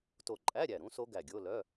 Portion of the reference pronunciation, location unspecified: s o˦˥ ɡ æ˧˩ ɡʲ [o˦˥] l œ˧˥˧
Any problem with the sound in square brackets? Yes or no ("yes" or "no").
yes